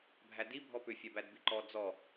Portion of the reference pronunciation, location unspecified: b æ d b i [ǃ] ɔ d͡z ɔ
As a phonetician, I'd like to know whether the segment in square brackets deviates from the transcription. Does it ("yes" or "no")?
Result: no